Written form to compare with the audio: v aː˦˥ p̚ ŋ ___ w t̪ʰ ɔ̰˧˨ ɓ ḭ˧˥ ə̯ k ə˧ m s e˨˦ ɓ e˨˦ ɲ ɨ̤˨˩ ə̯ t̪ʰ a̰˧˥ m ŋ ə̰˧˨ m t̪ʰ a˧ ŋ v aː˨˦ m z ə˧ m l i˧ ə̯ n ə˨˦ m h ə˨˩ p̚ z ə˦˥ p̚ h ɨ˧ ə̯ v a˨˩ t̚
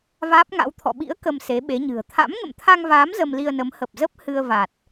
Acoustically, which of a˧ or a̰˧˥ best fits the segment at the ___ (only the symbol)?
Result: a̰˧˥